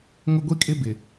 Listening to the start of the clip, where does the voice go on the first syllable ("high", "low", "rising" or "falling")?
high